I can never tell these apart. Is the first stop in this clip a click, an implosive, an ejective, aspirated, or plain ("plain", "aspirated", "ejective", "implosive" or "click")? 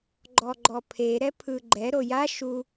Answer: click